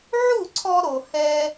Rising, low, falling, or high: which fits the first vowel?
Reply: falling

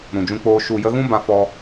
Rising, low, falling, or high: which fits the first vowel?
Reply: low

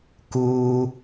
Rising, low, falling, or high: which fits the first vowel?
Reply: low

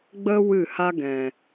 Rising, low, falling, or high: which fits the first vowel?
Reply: high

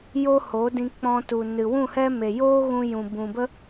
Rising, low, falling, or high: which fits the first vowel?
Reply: high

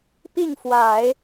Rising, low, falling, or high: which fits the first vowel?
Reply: falling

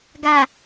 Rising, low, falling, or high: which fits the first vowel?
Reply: low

